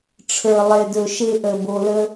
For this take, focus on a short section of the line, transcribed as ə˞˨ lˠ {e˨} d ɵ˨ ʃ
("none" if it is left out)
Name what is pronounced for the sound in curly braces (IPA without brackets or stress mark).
e˨